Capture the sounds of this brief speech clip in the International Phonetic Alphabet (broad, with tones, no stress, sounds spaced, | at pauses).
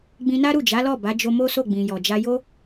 ɡ͡b ĩ˧ n a˦ ɾ u˦˨ d͡ʒ a˨˦ l ɔ˦˨ b a˨˦ d͡ʒ o˧ m o˦ s o˦˨ ɡ͡b ĩ˨ j ɔ˨ d͡ʒ a˧ j o˦